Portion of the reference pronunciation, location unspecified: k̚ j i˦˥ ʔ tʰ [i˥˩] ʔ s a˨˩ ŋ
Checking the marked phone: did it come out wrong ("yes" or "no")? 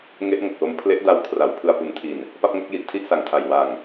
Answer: no